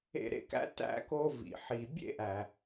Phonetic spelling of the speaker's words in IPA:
ḛ˧ ɾ ḛ˧ k æ̰˥ t æ̰˥ k o˧ v ḭ˩ ħ i˩ bʲ ḛ˥ ʔ æ˩

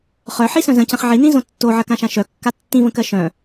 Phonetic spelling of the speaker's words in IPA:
χ œ ħ i s œ̃ z ə̃ c ə̃ χ ʕ i n ĩ z õ tː o ʕ ɜ k ã ʃ ã ʃ œ kː a tː ĩ v ə̃ k ɜ ʃ œ̃

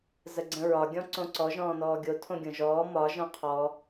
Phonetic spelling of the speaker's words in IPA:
z ə ɡ͡ǀ ə̃ ɹ ɒ ɡʲ ɔ̃ ǀ õ ǀ ɔ ʒ ɔ̃ː n ɔː ɡʲ o tʰ õ ɡʲ õ ʒ ɔː m ɒ ʒ ɔ̃ qʰ ɔ

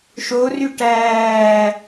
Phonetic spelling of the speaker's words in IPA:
ʃ o r y ʈ æː

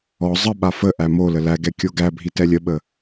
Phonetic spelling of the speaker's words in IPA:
ɔ zˤ ə ɓ a f ə ʔ æ m o l ə l æ ɡ ɛ kʲ o ɡ æ bʱ i t ɛ lʲ ə ɓ ə

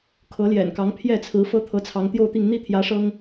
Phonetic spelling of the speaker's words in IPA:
kʰ ɤ˧˥ l j ɛ̰˨˩ n k ɑ˧˥ ŋ pʰ j ɛ˥˩ t͡sʰ ɹ̩˧˥ f ɤ˥ t̪ʰ ɤ˧˥ t͡sʰ ɑ˧˥ ŋ t̪ j o˥˧ ʊ̯ t̪ i˥˧ ŋ n̪ i˥˩ t̪ʰ j ä˧˥ ʂ ɤ˥ ŋ

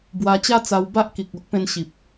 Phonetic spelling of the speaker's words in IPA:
b w a˧ t͡ɕ a˦ t͡s a˧ w b a˦ ʔ k i˨ k̚ o˦ ʔ p ẽ˧ n ɕ i˨ p̚

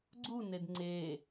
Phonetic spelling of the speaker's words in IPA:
ɡ͡ǀ u n e d ŋ͡ǀ e

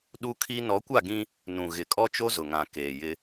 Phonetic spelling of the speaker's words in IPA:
ɗ u˦ kʰ i˦ n ɔ˨˦ kʷ a˦˨ ɡ ĩ˦ | n ũ˨ ɣ ɪ˨ kʼ ɔ˦ t͡ʃ o˦ z ʊ˨ ŋ ã˨ k eː˨ j ɪ˦

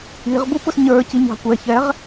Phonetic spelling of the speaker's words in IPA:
i ʁ b u p ʊ s ɲ ə˞ c i ɲ ɑ̤ kʷ ɛ ç ɛ ʁ

